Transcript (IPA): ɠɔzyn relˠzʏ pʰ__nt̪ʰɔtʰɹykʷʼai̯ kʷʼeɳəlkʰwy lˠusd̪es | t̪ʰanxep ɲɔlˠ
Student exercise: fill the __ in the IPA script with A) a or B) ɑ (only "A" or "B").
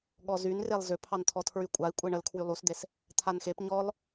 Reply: B